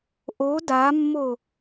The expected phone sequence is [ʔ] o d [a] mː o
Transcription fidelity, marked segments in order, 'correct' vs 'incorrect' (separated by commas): correct, correct